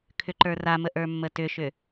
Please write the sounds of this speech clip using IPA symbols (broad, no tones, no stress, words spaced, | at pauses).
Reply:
kʰʏǃə˞ramə ʔə˞mːətʏʃʏ